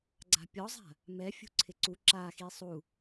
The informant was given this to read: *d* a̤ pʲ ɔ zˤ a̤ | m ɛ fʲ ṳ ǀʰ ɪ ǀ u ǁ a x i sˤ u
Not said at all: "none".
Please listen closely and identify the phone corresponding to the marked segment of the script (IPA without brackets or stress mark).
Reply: ɡ͡ǀ